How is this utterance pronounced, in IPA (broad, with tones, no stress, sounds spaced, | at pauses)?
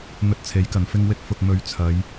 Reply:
n̪ ɵ˧ t̚ t͡sʰ e˨˥ j k ɐ˨ n f ɪ˧ ŋ w ɪ˧ k̚ f ʊ˨ k̚ m ɵ˨˥ ɥ t͡sʰ ɐ˨˧ j